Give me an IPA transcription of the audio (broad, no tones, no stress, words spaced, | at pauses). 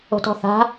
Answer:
o̤tɔ̤θa̤